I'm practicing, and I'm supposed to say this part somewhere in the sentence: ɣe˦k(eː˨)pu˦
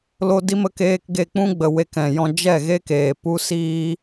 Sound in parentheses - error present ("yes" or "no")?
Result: no